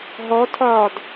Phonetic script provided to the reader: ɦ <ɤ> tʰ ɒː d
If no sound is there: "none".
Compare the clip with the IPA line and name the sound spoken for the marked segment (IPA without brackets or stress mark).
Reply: ɔ